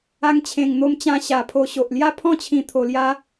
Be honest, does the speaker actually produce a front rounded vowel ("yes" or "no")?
no